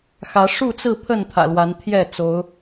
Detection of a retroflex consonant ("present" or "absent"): present